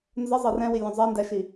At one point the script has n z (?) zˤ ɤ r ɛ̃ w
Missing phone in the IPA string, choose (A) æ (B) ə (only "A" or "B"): B